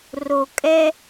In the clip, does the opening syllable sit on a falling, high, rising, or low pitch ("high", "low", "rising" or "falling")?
low